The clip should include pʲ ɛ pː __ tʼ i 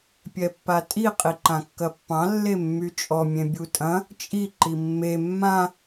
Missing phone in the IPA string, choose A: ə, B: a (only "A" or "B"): B